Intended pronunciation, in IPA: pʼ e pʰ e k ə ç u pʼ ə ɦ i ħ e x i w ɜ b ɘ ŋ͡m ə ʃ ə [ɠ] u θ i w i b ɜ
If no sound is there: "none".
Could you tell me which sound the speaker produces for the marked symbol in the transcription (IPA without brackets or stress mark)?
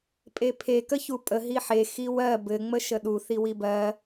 ɗ